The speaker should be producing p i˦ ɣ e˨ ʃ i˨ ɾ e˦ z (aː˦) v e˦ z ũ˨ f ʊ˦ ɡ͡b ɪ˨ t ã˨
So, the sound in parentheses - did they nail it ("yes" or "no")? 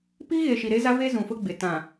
no